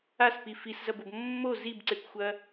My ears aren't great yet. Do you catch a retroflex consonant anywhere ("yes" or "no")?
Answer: no